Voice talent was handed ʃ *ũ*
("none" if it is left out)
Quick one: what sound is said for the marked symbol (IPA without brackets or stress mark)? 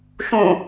ũ